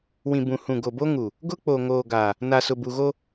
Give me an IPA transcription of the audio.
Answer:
wĩ˨bũ˨hũ˨ ɡo˨bo˦ŋu˨ | ɡʊ˦k͡po˨ŋoː˨ ɡa˨ | na˨sʊ˨bu˨ɣo˦

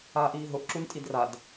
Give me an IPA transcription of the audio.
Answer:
aːʔiːɦʊʔ ǁuntʼidrad

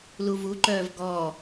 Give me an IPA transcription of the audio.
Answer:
luvuǃœːv ɡɔ

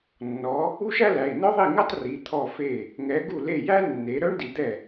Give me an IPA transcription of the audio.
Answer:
nːɔ˨˦ | u˥ʃæ˥læ˩˧˩i̯ nœ˥ðˤi˥˩ŋɛ˥tˤ ri˩˧˩ t̪ʰɔ˥˩fe˥˩ | ŋɛ˨˦ɡu˥˩le˥˩ jæ˥nːe˨˦ ɾœ˥ɳ di˨˦d̪ɛ˥˩

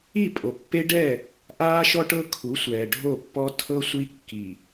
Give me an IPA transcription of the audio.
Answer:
i˦˨pʼo˨pːe˦ɖɛ˦˨ | ʔaː˦ʃɔ˦ʈɤ˦ kʰu˨˦sʷɛː˨ ɖʱo˦˨pːɔ˦ tʰɤ˦ sʷi˦kːi˨

